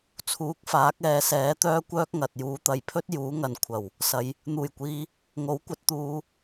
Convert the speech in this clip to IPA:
t͡sʰ uː˨˥ k̚ f aː˨˥ k̚ ɛː˨ s ɛː˨˥ t̪ œː˥ kʷ œː˥ k̚ ŋ ɐ˨ t̚ j uː˨˧ t̪ ɐ˨ j pʰ ɵ˥ t̚ j uː˨˥ ŋ ɐ˨ n kʷʰ ɐ˨˩ w | s ɐ˨˧ j | n̪ uː˨˩ j kʷ iː˨ | ŋ o˨˥ w kʷ ɐ˨˥ t̚ t̪ uː˨˧

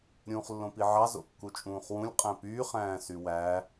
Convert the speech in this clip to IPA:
ɾʲ ũː χ lː õ p i ʕ ɑ z o̰ kː u t͡ʃʼ ũː χ w ũ lʲ qʼ æ̃ p yː χ æ̃ː s y w æ

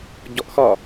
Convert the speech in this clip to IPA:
ɟ ɔ ʔ x ɒ

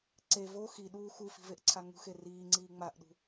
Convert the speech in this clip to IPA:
ǀ e v o x i ɗ uː x u f i̤ v e ʔ ǀʰ a ŋ ṳ x e r iː ŋ͡ǀ iː ŋ͡m a ʔ ɗ ṳ

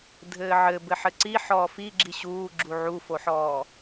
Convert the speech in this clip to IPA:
dʱ ɘː ʕ ɘ b ɘ ħ ɘ ǀ i ħ ɔː f i ɡ͡ǁ i ɕ uː ɡ͡ǁ u ʕ u f o ħ ɔː

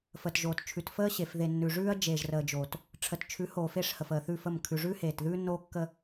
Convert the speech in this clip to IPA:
f əː˨ t ʒ oː˨ t t͡ʃʰ ʉ˨ t f əː˦ ɕ e˨ f ð e˨ nː ʉ˨ ʐ ʉː˦ ɐ̯ d͡ʒ eː˨ ʒ r əː˨ d͡ʒ oː˨ t | ʈ͡ʂʰ ə˨ t t͡ʃʰ ʉ˨˦ h oː˨ f e˦˨ ʂ h ə˨ f əː˨ θ ʉ˦˨ f ə˦˨ m kʰ ʉ˨ ʐ ʉː˦ h eː˨ t ð ʉː˦ nː oː˦ kː ə˦

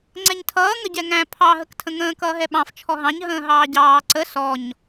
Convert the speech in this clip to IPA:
ŋ͡ǀ ɛ ɲ tʰ ʌː ŋ ə ɟ ɛ ŋ æ̃ pʰ ɑ ɦ ə k tʰ ə̃ ŋ ə̃ː k ʌː ɦ ɛ ɓ ɑ̃ f t͡ʃʰ ɔ ɦ ɑ̃ ɲ ɦ ə̃ː ɦ ɑː ɟ ɑː ǀ ə s ɔ ɲ

